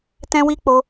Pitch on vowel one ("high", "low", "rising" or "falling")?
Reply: high